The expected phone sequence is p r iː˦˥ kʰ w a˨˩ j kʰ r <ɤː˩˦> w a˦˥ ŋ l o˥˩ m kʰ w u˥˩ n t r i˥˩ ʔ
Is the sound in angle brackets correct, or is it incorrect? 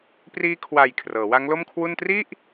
correct